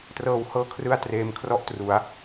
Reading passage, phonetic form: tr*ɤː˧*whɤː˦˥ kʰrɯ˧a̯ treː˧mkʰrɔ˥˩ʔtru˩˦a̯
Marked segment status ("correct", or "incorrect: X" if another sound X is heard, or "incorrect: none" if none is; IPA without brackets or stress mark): correct